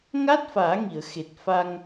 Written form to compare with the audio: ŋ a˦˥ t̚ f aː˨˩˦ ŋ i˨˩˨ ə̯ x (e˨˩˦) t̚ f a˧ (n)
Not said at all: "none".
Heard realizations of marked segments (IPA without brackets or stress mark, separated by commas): e˨˩, ŋ